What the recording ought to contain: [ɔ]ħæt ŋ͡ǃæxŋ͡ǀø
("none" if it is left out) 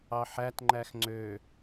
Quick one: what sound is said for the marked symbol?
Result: ɑ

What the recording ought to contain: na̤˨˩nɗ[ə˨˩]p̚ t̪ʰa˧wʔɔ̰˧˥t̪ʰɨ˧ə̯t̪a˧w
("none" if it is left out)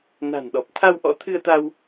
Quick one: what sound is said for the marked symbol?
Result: ɔ˨˩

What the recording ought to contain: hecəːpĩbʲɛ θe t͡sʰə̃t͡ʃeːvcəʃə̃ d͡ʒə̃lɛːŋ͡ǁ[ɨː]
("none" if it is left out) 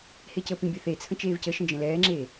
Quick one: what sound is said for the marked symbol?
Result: eː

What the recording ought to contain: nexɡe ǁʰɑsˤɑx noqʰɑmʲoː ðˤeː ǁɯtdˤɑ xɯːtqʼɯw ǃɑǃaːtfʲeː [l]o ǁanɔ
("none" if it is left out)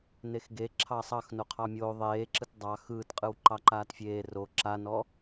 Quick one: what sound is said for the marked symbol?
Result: r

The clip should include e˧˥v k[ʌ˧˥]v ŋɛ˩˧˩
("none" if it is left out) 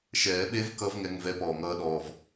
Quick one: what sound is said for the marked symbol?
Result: ʌ˧˥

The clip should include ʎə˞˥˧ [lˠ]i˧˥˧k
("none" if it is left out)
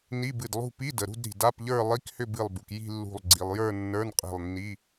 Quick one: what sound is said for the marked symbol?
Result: lˠ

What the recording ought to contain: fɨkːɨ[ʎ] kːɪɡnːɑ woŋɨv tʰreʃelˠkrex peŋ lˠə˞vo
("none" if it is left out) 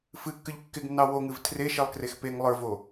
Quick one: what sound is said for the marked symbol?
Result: ʎ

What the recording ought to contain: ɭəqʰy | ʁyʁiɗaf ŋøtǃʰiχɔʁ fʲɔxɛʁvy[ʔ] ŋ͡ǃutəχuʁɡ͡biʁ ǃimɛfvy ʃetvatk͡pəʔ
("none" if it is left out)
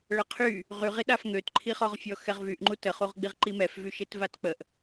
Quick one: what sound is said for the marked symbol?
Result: ʔ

